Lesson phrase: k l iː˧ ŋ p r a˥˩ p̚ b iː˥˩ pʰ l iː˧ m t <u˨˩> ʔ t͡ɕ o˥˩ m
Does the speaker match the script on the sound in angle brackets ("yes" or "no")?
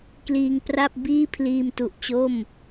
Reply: yes